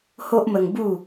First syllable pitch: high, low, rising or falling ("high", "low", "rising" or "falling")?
high